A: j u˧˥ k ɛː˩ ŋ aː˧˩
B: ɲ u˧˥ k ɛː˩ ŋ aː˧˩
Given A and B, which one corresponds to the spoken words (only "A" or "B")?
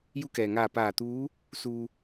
A